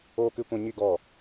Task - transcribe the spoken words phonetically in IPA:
oː˦kɨ˦kʷɛ̃˦ ɲi˦ ɡɔ˦˨

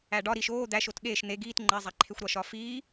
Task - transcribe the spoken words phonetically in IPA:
æɖɒ ɾiʃ oː d̪æʃ otɠeːʃ n̪e ɡiːt ŋ͡ǃezˤæǃʰexʷ ɾɒʃɒfiː

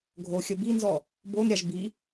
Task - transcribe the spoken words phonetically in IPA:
ɡʱoxʲə binzɔ | bonɾʲaʒ bi

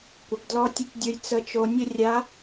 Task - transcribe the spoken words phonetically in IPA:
kʷə˩˧ɡdlɔ˧˥tʲə˧˥tʲdʲo˧j t͡sə˧˥t͡ʃo˧ nʲə˥ rʲa˧˥

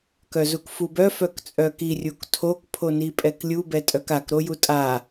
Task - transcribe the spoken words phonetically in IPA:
kœzukfubœ fœkt͡sʼœki rʲuktʰok pʰonipʼɛklʲu bɛtʼœkak ɾojutʼa

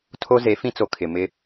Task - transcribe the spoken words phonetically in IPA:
tʰo˦ze˨˦fĩ˦t͡so˨ kʰɪ˨mɪ˦

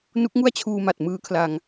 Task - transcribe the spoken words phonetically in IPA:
nu˦˥k̚ŋu˥˩a̯t͡ɕʰuː˧ma˨˩t̚ mɯː˦˥kʰla˧ŋ

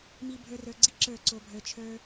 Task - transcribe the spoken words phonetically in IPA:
mi˧ bʱə˞˦rə˞˧ɡ͡ǀi˦ ǁə˞˦˨ǀo˧bʱə˞˧ t͡ʃʰə˞˦

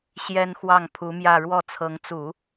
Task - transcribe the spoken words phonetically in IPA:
ɕjɛ˥nxwɑ˥˩ŋpʰu˧˥mjä˥˧ ɻwɔ˥˩t͡sʰɤ˧˥ŋt͡su˨˩˦

